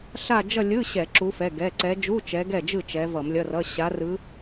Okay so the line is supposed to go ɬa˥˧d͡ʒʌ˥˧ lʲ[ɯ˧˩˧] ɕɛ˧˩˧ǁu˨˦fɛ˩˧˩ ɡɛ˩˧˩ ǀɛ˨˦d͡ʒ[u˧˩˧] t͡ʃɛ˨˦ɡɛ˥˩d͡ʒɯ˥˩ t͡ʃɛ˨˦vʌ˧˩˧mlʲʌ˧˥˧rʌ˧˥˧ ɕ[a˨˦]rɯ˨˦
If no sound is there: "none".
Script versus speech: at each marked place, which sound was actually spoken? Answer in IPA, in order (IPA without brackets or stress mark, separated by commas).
ɯ˧˥˧, u˧˥˧, a˨˦